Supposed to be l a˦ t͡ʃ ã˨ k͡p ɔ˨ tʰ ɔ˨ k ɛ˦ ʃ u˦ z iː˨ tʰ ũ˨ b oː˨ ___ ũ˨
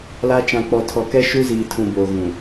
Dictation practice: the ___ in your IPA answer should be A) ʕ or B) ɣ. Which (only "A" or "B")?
B